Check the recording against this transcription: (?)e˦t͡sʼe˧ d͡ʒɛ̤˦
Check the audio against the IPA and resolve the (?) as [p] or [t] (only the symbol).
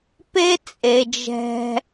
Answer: p